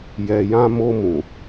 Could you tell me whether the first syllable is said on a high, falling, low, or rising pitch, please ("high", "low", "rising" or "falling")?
low